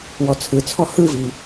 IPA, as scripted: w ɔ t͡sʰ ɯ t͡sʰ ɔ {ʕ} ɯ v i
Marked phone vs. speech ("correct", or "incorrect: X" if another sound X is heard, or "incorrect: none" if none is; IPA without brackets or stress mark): incorrect: h